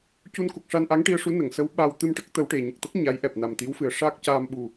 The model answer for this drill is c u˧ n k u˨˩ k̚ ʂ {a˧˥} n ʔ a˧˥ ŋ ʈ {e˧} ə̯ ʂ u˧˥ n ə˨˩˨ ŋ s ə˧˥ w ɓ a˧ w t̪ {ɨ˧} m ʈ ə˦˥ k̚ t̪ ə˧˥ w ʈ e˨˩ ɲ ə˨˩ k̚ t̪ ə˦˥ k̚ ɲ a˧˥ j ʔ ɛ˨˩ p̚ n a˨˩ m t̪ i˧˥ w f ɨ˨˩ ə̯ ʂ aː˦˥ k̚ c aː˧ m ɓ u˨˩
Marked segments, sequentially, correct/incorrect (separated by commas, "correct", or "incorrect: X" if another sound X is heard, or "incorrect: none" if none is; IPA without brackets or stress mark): incorrect: a˧, incorrect: i˧, correct